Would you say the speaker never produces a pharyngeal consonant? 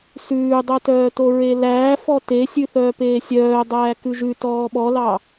yes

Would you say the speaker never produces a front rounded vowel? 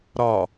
yes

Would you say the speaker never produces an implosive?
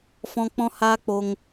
yes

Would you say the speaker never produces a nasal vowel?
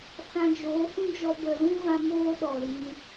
no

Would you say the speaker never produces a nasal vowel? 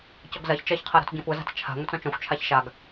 no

